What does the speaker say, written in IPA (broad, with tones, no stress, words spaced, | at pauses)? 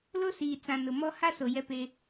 lo˦siː˨t͡sã˨ nʊ˨mɔ˦ ha˦so˨ jɛ˦pe˦